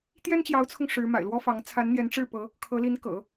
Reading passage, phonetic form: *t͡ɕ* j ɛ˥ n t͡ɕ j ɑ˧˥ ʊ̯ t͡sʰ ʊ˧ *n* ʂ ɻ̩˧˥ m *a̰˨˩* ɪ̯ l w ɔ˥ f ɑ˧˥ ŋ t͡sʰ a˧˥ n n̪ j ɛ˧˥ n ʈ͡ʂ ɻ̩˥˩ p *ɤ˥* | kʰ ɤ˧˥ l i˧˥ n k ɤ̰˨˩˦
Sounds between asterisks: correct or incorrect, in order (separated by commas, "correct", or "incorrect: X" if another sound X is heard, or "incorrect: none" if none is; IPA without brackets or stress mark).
incorrect: t̪, incorrect: ŋ, correct, incorrect: ɤ˧˥